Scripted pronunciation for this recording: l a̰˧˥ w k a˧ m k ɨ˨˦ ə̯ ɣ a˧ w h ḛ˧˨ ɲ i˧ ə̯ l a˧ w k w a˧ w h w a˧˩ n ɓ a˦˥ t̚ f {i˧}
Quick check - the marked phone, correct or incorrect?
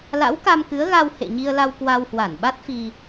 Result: correct